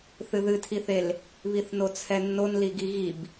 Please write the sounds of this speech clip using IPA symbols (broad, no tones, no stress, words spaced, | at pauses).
θɨðɨtʰiθel | βiθnot͡sʰɛnːon liɡiɣib